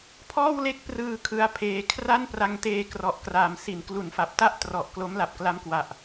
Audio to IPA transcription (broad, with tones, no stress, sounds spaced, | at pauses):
pʰ ɔː˥˩ w l e˥˩ k̚ p r ɯː˧ kʰ ɯ˦˥ a̯ pʰ eː˧ kʰ r a˥˩ n p r a˧ ŋ t eː˧ k r ɔ˨˩ ʔ k r aː˨˩ m s i˩˦ n k l u˩˦ n f a˨˩ p̚ t a˥˩ ʔ t r ɔ˨˩ ʔ k l o˦˥ m l a˨˩ p̚ k l a˦˥ m k w a˨˩ ʔ